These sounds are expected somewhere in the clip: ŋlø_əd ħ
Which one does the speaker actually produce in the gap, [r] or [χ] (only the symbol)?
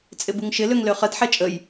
χ